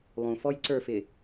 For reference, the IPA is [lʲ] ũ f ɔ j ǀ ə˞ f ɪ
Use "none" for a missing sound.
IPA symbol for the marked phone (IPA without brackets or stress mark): lˠ